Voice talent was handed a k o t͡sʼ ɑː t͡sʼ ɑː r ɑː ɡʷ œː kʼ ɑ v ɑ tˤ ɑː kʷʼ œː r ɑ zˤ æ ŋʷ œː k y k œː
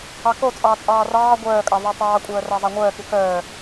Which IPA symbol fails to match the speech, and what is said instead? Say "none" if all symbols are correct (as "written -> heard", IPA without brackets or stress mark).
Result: a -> ɑ